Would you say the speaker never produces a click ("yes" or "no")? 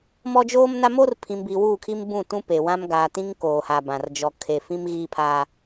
yes